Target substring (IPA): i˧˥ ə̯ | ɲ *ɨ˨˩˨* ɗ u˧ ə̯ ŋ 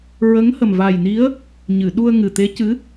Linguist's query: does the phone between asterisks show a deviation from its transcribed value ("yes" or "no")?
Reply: no